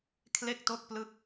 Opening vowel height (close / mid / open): mid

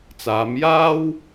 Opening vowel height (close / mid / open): open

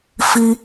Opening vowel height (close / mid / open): close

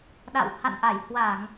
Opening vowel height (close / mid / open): open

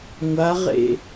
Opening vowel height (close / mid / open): open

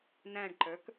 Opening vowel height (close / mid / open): open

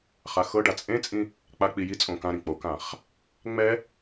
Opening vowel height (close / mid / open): open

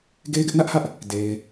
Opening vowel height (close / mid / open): mid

